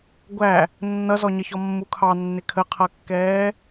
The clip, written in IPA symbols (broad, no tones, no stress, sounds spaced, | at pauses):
ɡʷ æ | nː ʌ z ɔ ɲ ʌ ç ɔ mː u kʰ ɑ nː ɪ kʰ ə qʰ ʌ kː ɛː